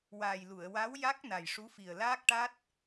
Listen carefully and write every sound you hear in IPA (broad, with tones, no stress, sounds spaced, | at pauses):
w aː˨˩ j l u˨˩˨ ə̯ w a˧˥ w j a˦˥ k̚ n a˨˩ j ʂ u˧˥ f i˨˩ ə̯ l aː˦˥ k̚ ʈ a˦˥ t̚